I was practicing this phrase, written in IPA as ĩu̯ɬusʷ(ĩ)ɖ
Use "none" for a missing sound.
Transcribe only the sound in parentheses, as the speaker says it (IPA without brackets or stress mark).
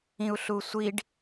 i